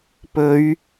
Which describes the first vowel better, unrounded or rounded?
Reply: rounded